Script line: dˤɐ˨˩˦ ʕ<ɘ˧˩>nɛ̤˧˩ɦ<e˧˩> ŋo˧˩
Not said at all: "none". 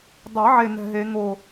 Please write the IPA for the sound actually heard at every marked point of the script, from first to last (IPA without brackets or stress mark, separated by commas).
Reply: e˧˩, e˨˩˦